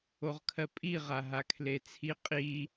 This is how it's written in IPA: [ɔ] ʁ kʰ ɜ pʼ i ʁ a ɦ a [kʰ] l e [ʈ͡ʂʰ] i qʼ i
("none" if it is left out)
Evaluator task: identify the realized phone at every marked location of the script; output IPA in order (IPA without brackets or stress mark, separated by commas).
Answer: o, kʰ, t͡sʰ